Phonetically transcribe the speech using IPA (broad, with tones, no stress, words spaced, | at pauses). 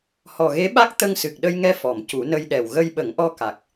hɔ˨˩ɣe˧˥ɓa˦˥k̚ t̪ə˧ŋsɨ˨˩k̚ɗə˧jŋɛ˧ fɔ˨˩˨mcu˨˩˦nə˧jɗɛ˨˩w ɣə˧jɓə˨˩˦ŋʔɔ˧ ka˨˩k̚